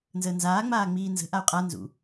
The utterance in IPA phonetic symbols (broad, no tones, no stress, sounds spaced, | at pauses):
n z əː n z aː ŋ͡m aː ŋ͡m iː n z ə̤ ʔ a u̯ qʼ a n z ṵ